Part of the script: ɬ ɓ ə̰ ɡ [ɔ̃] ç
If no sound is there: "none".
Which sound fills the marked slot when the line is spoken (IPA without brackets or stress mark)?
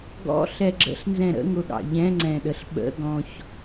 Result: ɔ̃